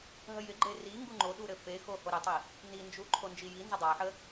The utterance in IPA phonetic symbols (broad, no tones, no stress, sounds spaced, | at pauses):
ɦ ə j ɪ ɡ͡ǃ e r i ŋ ɡ u ŋ͡ǃ o ɗ u ɾ ɘ f e x o h o ɾ ɪ tˤ i | n i n d͡ʒ u ǃʰ o n d͡ʒ i j i n z ə dˤ a ħ ə